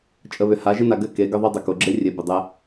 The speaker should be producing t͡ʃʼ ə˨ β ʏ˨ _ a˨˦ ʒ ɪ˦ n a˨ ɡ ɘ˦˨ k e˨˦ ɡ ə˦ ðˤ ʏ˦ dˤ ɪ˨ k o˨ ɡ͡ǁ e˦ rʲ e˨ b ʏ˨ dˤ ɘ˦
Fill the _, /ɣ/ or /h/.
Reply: h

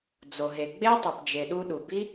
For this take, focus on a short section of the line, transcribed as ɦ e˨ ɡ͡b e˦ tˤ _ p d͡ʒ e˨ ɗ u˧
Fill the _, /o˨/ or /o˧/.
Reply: o˨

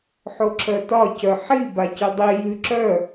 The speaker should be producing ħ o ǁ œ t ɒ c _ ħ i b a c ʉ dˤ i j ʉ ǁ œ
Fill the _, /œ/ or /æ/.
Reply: œ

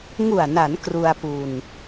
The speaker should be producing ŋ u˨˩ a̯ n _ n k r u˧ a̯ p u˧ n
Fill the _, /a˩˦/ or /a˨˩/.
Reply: a˩˦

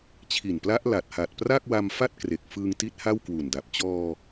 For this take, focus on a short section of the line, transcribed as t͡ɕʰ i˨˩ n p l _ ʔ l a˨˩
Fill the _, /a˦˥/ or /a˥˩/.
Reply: a˦˥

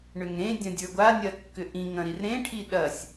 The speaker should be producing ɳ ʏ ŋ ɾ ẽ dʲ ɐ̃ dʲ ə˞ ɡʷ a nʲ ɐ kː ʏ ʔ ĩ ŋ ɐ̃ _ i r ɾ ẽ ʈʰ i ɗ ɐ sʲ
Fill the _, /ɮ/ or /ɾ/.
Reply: ɾ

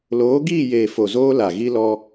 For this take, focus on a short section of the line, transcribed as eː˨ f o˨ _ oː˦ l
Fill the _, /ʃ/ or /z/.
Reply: z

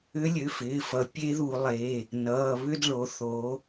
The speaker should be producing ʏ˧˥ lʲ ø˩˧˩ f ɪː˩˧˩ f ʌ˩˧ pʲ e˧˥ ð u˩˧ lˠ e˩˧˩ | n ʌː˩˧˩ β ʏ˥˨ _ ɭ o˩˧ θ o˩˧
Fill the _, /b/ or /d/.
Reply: d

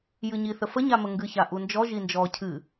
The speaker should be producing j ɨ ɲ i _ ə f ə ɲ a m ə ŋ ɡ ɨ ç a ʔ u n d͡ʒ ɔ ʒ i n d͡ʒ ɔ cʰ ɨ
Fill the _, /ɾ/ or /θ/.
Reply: θ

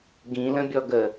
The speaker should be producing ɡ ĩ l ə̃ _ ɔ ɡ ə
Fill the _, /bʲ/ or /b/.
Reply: bʲ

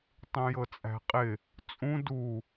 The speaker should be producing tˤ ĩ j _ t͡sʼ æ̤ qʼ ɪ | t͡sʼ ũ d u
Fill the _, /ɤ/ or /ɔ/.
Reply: ɤ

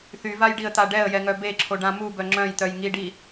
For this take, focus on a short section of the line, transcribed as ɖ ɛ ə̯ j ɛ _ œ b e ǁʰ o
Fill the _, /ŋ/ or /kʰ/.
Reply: ŋ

